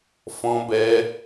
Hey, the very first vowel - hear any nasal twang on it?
yes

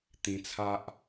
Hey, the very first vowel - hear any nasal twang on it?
yes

